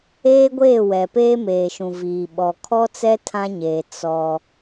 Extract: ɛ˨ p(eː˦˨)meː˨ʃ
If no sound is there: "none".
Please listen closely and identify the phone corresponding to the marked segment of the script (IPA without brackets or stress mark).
eː˦